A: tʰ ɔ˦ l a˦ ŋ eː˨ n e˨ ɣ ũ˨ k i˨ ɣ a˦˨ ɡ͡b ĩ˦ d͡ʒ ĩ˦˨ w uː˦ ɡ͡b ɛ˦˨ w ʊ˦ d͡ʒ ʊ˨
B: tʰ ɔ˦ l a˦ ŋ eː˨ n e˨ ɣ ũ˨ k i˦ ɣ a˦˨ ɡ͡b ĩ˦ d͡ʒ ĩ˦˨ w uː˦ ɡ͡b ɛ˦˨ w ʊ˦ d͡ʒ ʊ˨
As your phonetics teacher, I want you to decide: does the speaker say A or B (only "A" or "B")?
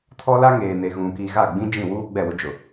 A